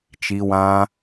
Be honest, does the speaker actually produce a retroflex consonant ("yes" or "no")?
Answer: no